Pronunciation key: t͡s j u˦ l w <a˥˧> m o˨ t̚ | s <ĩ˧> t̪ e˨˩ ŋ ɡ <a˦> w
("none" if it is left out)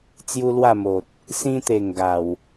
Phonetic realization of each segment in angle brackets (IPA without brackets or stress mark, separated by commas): a˥˧, ĩ˧, a˨˩